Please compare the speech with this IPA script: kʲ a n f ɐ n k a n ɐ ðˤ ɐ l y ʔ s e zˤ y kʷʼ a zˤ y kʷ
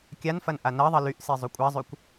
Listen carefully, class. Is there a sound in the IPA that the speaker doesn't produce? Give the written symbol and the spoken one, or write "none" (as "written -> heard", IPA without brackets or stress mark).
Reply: k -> ʔ